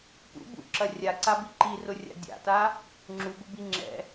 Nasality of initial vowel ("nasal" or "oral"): oral